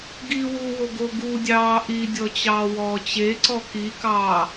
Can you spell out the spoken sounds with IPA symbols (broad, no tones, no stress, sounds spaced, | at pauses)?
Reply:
ɡ iː w u w o ɡ o ɡ u dʲ ɑː ʔ i dʲ ɔ t͡ɕ ɑː w ɔː t͡ɕ e ǀ ɔ k i k ɑː